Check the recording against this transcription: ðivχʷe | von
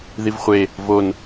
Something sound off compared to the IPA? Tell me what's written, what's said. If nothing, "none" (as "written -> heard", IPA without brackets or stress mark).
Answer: none